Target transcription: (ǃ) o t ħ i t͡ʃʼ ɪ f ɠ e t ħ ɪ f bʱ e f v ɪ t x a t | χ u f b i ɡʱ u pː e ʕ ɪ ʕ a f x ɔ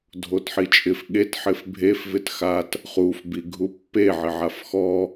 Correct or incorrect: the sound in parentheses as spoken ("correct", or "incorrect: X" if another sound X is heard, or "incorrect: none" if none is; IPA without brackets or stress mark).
incorrect: dʱ